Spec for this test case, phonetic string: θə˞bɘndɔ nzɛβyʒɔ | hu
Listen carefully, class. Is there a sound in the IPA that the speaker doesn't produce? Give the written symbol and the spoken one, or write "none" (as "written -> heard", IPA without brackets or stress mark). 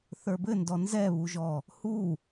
y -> u